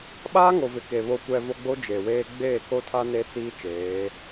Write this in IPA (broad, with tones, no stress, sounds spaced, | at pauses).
ɓ aː˦ ŋ o˨ v ɪ˨ k e˨ β o˨ kʷ ɛ˨ v o˦ ɡ͡b o˦ d͡ʒ e˨ w eː˦ ɡ͡b eː˦˨ k o˦ tʰ a˦ n e˦ t͡s iː˦ t͡ʃ eː˨˦